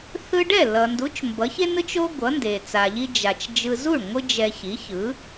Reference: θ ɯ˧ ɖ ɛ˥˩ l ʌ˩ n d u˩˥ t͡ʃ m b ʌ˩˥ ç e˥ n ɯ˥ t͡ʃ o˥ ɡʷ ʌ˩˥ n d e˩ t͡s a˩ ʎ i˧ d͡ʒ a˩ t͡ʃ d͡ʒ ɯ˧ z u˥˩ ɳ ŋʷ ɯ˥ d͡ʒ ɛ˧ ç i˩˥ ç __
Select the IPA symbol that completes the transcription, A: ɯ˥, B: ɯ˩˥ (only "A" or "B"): B